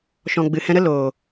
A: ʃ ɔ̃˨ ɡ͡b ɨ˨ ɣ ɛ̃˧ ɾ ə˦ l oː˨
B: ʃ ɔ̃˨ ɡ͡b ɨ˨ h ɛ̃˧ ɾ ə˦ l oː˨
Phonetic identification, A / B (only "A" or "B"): B